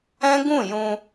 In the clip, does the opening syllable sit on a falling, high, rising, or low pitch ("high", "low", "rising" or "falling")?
high